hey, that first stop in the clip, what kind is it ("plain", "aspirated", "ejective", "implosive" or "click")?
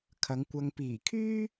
aspirated